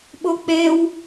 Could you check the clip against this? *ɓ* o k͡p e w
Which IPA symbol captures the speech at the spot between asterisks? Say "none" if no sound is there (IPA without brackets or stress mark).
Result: ɓ